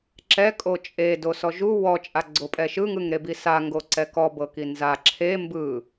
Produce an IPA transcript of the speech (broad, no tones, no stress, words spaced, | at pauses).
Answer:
ǁɛ kʼot͡ʃʼe dosɔʒu wɔ t͡ʃʼaɡ͡ǀopʼɛʃɯ ŋɯŋɾebisa ŋɡoǀɛkɔ bɤkinza ǁʰe mbɯ